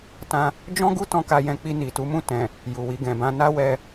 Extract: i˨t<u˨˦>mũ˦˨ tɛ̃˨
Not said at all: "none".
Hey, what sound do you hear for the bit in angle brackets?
u˨˦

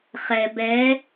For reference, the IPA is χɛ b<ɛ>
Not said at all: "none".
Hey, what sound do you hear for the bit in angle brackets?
ɛ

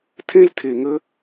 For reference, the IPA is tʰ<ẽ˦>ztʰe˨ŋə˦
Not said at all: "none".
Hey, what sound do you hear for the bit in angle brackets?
ẽ˦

